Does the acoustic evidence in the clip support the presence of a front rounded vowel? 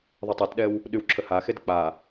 yes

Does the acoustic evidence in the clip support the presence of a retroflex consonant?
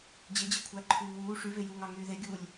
yes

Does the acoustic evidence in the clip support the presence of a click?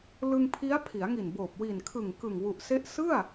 no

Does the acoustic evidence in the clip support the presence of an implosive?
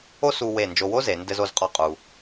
no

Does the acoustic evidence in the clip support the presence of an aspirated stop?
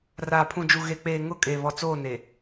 yes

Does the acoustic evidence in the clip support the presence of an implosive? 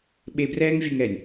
yes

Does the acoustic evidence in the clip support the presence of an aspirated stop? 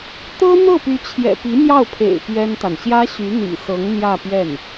yes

